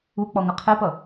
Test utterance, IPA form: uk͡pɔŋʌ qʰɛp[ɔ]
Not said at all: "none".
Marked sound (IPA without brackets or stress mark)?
ʌ